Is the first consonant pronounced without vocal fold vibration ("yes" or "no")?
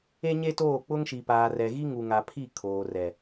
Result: no